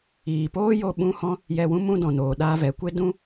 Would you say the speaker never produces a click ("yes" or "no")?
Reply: yes